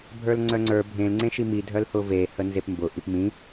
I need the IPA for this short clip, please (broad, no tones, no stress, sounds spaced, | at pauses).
bʱ ə˞ l ŋ͡ǀ œ ŋ͡ǀ ə˞ bʱ ẽ l ŋ͡ǀ ẽ ʃ i m i dʱ œ l h ʊ v e h ə n z e p m b ʊ ʔ i p m ĩ